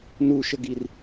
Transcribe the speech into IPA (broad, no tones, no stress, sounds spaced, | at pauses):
n u ʃ ə ɡ i r